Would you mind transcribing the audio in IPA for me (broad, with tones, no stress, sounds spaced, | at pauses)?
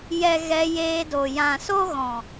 j ɛ˨ ɣ ɛ˧ j eː˧ d o˨ j ã˨ s o˦ ɣ ɔ̃˨